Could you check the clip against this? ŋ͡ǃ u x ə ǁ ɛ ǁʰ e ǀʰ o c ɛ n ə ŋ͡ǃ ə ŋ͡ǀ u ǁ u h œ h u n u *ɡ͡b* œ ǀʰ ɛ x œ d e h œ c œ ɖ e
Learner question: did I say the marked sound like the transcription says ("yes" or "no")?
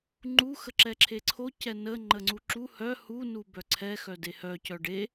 no